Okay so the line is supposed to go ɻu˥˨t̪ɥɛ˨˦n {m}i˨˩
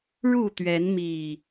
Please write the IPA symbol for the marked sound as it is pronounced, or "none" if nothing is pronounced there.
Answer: m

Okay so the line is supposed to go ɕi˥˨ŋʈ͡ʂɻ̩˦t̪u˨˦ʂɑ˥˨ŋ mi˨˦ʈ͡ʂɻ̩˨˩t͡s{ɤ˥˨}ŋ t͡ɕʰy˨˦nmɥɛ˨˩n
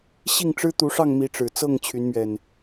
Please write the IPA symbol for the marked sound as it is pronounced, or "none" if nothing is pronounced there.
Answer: ɤ˥˨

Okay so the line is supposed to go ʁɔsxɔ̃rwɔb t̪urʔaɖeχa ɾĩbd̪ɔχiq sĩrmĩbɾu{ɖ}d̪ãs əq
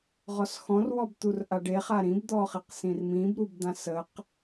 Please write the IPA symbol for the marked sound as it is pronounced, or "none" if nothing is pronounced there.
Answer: b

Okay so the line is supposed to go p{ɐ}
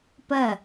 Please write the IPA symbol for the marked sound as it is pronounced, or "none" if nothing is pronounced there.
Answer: ɐ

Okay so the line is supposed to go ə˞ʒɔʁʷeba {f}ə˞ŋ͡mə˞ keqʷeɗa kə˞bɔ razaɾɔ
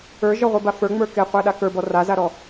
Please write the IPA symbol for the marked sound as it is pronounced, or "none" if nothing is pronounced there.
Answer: f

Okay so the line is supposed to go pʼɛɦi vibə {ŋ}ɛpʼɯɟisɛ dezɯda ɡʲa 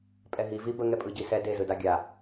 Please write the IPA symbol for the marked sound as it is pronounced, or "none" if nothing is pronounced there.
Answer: ŋ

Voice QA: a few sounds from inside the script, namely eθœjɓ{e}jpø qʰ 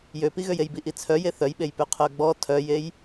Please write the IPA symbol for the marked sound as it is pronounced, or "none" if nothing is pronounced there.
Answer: e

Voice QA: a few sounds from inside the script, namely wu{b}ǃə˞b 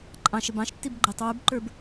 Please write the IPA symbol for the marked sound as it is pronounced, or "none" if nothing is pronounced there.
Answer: b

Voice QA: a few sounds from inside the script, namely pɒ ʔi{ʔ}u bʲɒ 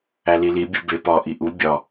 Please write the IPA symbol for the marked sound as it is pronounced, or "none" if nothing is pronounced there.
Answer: ʔ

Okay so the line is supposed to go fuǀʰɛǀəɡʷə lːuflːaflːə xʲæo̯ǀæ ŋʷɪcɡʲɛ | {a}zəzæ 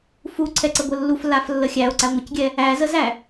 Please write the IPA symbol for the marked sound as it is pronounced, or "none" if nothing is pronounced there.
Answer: æ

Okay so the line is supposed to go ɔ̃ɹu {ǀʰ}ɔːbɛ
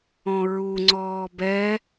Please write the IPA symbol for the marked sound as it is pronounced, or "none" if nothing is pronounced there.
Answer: ŋ͡ǀ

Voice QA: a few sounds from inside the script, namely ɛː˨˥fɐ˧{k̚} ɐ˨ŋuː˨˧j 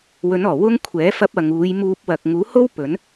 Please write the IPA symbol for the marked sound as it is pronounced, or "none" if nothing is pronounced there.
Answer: p̚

